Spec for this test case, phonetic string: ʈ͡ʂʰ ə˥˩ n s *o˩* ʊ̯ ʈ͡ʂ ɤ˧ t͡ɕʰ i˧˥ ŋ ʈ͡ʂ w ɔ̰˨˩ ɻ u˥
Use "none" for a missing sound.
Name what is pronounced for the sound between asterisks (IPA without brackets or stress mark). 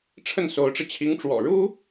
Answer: o˧˥